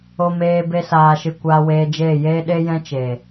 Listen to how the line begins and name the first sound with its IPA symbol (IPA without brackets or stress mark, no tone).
o